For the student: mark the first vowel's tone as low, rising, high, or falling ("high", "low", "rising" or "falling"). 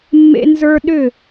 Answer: high